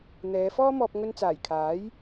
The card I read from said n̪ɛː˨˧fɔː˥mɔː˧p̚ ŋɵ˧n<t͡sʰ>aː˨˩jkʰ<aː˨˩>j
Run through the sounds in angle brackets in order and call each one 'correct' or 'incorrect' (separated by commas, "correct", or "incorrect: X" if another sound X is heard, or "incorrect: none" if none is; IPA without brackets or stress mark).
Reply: incorrect: t͡s, incorrect: aː˨˥